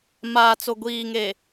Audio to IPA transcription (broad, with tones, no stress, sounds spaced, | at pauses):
m aː˨ t͡s o˨ ɡʷ iː˨ ŋ e˨